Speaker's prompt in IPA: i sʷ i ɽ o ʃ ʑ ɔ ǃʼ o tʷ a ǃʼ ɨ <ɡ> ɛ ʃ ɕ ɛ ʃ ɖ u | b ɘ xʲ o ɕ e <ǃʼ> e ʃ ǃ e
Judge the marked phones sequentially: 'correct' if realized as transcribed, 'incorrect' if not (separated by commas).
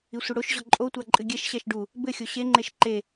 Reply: incorrect, incorrect